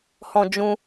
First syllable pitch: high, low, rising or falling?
high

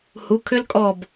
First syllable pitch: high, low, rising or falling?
rising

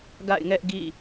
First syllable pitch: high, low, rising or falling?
falling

